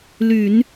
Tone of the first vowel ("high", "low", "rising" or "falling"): low